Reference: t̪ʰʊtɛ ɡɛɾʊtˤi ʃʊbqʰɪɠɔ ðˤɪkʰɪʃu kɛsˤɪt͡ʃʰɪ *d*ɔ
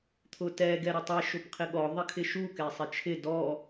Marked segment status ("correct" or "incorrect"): correct